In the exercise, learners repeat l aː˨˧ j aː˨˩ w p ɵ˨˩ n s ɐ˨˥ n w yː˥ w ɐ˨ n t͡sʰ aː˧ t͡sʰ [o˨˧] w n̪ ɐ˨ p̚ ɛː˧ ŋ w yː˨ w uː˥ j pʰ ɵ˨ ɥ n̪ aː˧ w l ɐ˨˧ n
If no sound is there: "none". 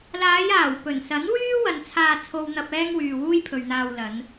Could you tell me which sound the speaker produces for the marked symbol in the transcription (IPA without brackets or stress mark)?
o˨